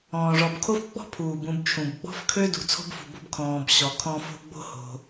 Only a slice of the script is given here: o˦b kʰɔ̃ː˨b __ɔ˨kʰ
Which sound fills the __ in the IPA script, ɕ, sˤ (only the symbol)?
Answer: ɕ